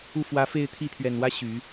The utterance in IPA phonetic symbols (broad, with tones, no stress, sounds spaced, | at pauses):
u˥˩ f w ä˧˥ f e˥˧ ɪ̯ t̪ʰ i˥˩ t̪ʰ ɥ ɛ˨˩ n w ä˥ ɕ y˨˩˦